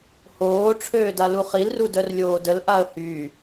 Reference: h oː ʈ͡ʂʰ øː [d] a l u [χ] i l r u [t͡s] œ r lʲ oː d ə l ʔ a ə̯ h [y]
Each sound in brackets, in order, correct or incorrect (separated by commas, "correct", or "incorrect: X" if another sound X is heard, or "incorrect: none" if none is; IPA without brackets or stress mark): correct, correct, incorrect: d, correct